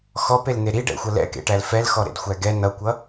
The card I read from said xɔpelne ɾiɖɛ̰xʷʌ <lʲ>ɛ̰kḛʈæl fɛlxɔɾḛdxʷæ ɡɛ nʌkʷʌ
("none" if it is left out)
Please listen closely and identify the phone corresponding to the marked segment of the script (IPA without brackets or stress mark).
l